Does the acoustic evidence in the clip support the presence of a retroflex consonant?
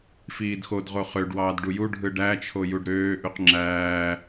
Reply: yes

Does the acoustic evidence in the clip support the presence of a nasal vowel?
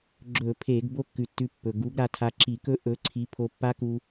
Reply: no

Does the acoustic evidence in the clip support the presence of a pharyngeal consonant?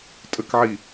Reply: yes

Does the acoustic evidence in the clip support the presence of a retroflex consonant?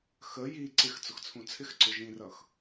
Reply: no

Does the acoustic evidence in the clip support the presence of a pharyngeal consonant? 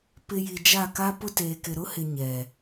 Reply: no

